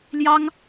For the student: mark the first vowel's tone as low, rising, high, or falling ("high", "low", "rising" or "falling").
high